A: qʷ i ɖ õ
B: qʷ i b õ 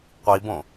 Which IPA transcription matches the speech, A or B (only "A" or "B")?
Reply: B